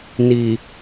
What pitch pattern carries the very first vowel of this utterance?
low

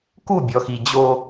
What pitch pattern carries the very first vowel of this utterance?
falling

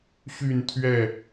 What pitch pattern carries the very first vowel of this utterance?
falling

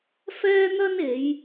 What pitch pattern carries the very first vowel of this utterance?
high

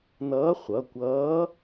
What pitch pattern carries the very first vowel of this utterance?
rising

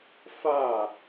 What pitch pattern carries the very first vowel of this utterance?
falling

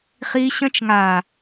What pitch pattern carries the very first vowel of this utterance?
high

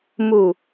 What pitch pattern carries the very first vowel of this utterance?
low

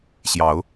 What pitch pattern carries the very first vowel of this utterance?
rising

